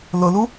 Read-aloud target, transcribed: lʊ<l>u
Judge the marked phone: correct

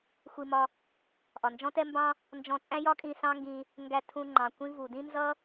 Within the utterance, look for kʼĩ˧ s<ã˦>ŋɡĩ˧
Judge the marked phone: incorrect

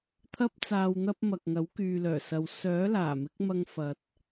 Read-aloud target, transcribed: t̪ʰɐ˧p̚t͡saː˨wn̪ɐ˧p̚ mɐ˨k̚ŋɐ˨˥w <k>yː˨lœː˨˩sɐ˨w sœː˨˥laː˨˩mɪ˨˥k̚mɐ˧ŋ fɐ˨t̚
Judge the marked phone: correct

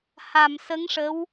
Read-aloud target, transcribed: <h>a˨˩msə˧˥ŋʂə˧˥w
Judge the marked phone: correct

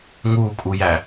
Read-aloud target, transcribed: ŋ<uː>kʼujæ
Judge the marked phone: correct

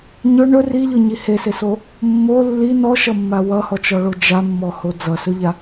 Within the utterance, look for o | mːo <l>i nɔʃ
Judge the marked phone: incorrect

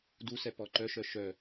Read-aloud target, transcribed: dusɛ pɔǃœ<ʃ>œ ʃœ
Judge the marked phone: correct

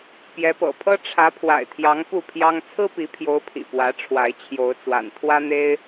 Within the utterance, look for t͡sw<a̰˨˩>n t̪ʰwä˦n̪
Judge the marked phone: correct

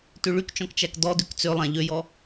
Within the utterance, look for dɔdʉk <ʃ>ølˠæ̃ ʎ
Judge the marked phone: incorrect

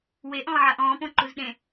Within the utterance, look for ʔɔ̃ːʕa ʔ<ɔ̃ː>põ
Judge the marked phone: correct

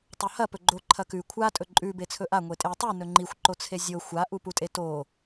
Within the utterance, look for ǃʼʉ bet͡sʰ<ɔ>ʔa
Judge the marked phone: incorrect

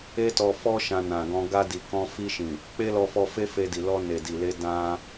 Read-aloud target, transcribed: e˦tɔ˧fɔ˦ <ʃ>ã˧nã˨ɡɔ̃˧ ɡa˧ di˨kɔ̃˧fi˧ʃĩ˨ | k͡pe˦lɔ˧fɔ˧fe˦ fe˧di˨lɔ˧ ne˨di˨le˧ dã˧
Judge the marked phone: correct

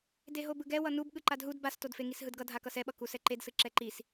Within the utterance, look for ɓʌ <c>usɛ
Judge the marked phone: incorrect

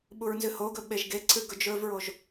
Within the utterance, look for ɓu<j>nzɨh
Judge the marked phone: incorrect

